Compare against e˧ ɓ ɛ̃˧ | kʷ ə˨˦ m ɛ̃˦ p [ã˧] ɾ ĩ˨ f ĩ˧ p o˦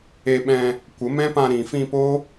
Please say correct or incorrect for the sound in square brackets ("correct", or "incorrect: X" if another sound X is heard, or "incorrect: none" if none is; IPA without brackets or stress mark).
correct